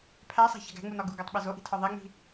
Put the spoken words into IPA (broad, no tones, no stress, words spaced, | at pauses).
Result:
pʰæsˤæ̤çæ̤ɡ æ̤ŋ͡munɒ ɡuɡætˤɓez oʔi̤tʰɒ ðˤeŋ͡mi̤